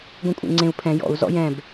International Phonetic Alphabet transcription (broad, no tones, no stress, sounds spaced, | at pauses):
ɡʷ ĩ kʷʼ ḛ ŋ͡ǀ ẽ u̯ pʰ ɛ̃ j ɔ̰ u̯ z ɔ̰ j ɛ̃ b